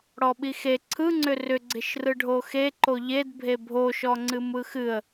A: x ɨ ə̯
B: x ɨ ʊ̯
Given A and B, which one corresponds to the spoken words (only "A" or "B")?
A